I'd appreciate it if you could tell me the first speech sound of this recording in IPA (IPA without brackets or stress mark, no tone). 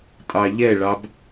tʼ